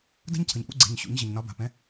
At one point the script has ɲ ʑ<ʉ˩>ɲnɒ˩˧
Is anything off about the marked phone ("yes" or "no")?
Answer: yes